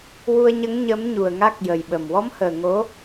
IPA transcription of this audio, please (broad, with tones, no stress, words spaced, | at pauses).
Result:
wu˧ə̯ɲə˧˥ŋ ɲə˧˥m ɲu˨˩ə̯ŋa˦˥k̚ jə˨˩jɓə˨˩m wɔ˧˥mhəː˨˩ ŋo˧˥